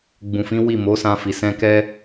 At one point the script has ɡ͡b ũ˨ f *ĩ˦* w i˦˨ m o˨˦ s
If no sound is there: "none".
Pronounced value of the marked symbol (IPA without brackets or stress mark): ĩ˨˦